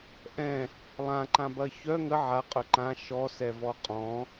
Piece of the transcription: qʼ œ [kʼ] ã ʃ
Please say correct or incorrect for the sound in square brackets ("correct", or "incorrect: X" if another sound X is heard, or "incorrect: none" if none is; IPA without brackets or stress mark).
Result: incorrect: ǃ